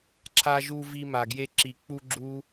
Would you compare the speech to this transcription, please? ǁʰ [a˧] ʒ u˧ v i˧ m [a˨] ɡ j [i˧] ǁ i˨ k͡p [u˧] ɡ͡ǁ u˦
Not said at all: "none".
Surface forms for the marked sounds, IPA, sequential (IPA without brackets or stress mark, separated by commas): a˧, a˨, e˧, u˧